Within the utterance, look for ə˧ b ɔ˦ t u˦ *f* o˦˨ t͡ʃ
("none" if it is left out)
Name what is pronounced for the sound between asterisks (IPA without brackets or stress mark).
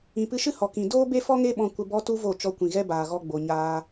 v